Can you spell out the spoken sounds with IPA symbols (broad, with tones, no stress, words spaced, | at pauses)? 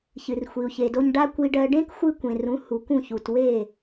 çɨ˩rxʷi˩u̯çe˩do˧ɲ ɖa˥kʷi˧ɖɜ˧ ɖẽ˥kxʷɨ˧kʷẽ˩ rũ˩˥ hu˩kũ˥˩çu˩t we˥˩